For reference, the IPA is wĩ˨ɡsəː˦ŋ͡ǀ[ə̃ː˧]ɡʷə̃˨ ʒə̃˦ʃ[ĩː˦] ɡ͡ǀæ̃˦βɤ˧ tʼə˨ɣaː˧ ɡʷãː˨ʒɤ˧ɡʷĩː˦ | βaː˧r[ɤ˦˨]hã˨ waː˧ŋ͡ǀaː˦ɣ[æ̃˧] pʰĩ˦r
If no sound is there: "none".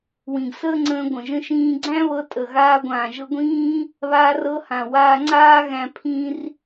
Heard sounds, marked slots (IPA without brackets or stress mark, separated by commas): ə̃ː˧, ĩː˦, ɤ˧, æ̃˧